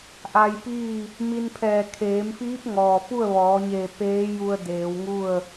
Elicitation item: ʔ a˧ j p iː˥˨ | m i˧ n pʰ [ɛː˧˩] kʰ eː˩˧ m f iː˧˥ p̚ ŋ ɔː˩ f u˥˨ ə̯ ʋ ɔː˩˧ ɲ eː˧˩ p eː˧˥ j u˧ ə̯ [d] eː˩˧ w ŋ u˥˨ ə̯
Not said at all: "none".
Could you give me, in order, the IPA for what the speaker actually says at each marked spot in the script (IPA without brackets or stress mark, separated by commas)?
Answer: ɛː˧˩, d